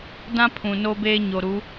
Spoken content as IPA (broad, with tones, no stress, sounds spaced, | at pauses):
d ã˦ pʰ ũ˨ n o˦ b eː˦ ɲ o˨ ɾ u˨˦